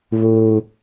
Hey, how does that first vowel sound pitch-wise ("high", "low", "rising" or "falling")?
high